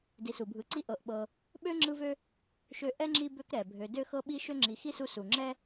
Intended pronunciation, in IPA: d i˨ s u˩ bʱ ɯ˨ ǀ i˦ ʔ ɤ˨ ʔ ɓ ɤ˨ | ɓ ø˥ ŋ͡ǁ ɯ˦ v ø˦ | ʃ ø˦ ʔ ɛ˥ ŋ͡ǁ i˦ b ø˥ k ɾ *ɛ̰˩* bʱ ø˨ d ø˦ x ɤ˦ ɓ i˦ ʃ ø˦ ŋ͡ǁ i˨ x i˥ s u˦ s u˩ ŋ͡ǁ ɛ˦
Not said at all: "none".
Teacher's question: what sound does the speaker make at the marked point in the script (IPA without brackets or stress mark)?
ɛ˩